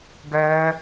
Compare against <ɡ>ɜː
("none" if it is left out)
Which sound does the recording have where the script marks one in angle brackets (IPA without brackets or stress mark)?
ɡ